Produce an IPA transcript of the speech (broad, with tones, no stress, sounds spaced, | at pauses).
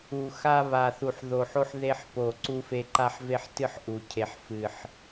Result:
u˨˩ x a˧ β a˨˩ θ u˨˩ ħ ð o˨˩ ħ o˧ ħ ð e˧ ħ p o˨˩ ǀ u˧ f e˧ ǃ a˧ ħ v e˧ ħ t ɨ˧ ħ ʔ u˨˩ cʰ e˨˩ ħ f ɨ˨˩ ħ